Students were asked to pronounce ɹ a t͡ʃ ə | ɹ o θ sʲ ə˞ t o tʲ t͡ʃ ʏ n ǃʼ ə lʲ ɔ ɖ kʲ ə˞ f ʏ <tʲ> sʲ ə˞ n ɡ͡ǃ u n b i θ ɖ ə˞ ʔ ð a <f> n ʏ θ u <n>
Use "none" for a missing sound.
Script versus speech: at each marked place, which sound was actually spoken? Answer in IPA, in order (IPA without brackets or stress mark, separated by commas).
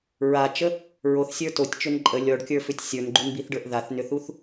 tʲ, θ, θ